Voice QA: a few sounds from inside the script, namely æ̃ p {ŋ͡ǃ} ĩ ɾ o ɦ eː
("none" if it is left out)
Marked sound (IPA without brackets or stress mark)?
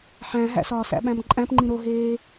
ŋ͡ǃ